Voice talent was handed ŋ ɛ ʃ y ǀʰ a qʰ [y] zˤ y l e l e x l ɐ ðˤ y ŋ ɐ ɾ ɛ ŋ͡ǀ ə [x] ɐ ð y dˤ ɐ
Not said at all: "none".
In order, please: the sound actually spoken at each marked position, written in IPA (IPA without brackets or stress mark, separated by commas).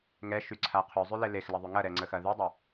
y, x